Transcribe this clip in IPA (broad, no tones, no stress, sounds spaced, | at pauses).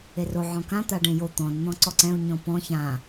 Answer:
e r o ʕ ɔ̃ k ã t̪ a ɖ ẽ j o t̪ ɔ̃ n n̪ ɔ̃ ǀ ɔ ǀ ɛ̃ u̯ ɲ ɔ̃ p ɔ̃ ç ã